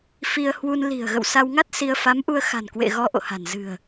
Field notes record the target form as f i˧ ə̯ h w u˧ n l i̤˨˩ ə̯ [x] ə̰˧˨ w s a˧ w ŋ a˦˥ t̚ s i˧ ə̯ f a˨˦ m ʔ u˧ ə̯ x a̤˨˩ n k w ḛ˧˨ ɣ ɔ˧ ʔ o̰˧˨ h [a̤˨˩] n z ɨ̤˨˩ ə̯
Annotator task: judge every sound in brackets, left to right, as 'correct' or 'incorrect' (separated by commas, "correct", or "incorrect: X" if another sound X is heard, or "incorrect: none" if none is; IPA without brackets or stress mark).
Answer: incorrect: ɣ, correct